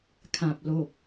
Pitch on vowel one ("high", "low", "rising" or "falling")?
low